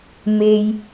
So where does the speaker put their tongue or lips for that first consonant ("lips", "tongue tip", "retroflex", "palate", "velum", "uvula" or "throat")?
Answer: lips